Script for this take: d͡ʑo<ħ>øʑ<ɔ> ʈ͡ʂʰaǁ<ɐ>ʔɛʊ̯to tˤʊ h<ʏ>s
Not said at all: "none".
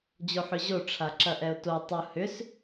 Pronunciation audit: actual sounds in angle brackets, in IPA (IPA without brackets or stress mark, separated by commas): ħ, o, ɐ, ʏ